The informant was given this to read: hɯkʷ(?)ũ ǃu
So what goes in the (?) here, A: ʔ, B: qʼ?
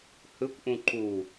A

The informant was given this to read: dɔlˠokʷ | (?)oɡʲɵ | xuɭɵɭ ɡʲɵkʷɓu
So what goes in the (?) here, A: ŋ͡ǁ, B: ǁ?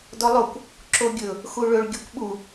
B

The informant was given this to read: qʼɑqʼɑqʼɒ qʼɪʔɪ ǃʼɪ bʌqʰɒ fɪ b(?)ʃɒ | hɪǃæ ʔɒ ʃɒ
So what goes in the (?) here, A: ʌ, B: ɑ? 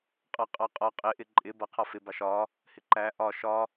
B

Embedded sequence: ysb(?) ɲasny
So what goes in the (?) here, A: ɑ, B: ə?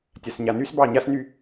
A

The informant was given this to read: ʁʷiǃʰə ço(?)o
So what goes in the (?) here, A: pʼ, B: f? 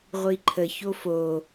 B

